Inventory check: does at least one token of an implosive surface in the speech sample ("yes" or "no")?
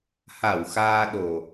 yes